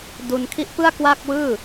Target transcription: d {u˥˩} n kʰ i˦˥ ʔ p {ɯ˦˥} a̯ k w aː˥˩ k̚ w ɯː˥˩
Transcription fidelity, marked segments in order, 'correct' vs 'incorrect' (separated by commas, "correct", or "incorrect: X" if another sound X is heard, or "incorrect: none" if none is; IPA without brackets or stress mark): incorrect: u˧, incorrect: ɯ˥˩